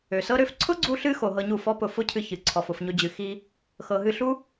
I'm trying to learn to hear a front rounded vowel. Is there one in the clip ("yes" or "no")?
yes